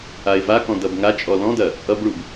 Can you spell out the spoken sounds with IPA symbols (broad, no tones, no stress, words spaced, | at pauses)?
aɪ̯vakɔ̃ dʌbŋat͡ʃʼɔ lɔ̃dɐ | ʔʌbɭub